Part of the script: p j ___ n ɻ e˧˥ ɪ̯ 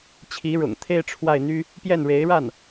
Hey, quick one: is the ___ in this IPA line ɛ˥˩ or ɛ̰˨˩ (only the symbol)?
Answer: ɛ˥˩